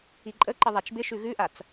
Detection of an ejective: present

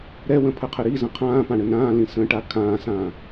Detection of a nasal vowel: present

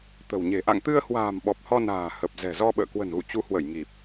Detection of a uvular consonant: absent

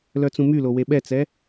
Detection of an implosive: present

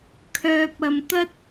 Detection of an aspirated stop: present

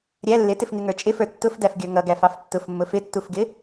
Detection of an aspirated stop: absent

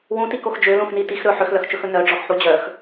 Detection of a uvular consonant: absent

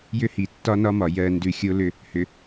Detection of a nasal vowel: absent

